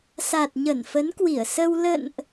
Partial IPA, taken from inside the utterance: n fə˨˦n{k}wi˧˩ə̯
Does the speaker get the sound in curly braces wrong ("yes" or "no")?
no